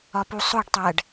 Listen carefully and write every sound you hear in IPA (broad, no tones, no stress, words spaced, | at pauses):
ɒpusˤoɖtˤæɖ